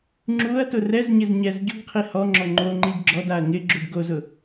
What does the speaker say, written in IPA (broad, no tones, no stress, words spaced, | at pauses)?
ŋ͡ǁuɐ̯ tʊrɛzɲɪz ɲɛzɟʊɡqʰi hɔŋ͡ǁɔ ŋ͡ǃoŋ͡ǃiɡ ɡ͡ǁɔdaɐ̯ ŋɪɡ͡ǁud ɡozʊ